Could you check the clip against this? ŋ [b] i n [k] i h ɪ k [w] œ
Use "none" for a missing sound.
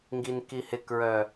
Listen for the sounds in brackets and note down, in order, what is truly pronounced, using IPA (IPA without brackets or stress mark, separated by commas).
ɡ, k, ɹ